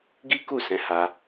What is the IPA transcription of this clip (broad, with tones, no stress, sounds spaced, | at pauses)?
ɡ i˦ k u˦˨ s ɛ̃˧ h a˧